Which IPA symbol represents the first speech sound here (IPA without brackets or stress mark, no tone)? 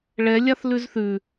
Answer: ɭ